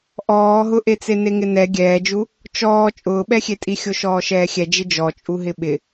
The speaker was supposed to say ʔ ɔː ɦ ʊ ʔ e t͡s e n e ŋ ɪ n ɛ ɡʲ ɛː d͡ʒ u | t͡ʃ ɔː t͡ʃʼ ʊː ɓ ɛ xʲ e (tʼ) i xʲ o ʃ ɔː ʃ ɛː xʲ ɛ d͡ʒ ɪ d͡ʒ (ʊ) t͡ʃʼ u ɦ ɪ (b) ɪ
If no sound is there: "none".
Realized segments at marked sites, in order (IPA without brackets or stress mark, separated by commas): tʼ, ɔ, ɓ